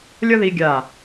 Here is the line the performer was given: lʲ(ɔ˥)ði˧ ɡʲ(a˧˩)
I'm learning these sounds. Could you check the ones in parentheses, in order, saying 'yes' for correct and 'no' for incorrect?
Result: no, yes

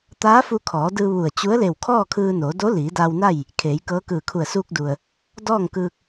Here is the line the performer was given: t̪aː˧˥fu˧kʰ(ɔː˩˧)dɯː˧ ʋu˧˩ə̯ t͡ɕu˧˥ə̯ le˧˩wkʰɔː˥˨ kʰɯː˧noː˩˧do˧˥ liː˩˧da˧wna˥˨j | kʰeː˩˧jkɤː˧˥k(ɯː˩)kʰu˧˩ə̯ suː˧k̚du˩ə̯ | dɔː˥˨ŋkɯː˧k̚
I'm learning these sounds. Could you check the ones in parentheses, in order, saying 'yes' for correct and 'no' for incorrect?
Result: yes, no

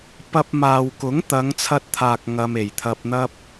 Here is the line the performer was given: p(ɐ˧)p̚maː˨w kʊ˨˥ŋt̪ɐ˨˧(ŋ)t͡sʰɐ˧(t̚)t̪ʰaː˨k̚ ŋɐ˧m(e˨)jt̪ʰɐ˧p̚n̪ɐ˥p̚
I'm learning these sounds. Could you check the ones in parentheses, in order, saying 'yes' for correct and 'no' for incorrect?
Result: yes, yes, yes, no

